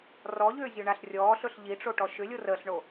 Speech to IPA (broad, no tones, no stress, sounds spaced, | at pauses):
r ɔ ʎ ʏː zʲ ɵ ɳ a ɬ rʲ ɔː ɬ ɵ ɬ ʎ i ʈ͡ʂ o ʈ ɔ ʃ ʏ lʲ o r əː ɬ ɳ o